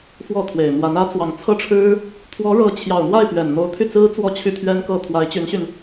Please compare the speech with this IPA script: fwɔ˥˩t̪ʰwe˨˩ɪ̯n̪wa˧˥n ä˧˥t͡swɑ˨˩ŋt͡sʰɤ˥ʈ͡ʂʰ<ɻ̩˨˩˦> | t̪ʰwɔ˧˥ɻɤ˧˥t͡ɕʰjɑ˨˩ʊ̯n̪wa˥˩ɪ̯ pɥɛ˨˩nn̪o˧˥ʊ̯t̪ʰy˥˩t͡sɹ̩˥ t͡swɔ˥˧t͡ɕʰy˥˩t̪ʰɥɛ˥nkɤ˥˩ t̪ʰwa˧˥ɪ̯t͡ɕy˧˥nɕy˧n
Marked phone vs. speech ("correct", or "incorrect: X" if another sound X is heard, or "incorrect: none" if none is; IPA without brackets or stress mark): incorrect: ɻ̩˥